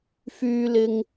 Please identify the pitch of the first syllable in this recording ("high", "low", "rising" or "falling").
low